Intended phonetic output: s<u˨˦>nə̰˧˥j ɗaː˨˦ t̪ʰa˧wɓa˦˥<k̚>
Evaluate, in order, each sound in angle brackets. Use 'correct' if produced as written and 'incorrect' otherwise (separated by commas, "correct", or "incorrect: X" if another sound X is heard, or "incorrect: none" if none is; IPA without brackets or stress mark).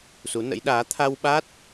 correct, incorrect: t̚